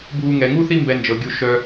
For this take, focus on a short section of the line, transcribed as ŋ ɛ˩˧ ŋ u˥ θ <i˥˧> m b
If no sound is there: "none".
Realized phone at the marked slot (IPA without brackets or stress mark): i˥˧